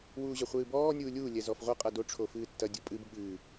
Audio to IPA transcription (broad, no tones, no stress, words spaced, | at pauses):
wuːʑɐχʷɨːbɔː nʲuːlʲuː lʲɛzɔfʁʷɐ qʼɐdo ʈ͡ʂʰofɨːtːɐ dʲopʼɨb ɠɨː